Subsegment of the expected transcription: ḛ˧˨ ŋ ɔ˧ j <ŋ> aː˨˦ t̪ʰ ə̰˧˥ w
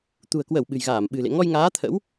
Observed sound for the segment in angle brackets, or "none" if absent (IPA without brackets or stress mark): ŋ